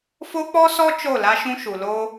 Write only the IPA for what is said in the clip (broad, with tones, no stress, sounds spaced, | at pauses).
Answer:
f o˦ k͡p ɔ˦ s ɔ˦ t͡ʃ o˦˨ l a˦ ʃ ũ˦ ʃ u˨ l o˦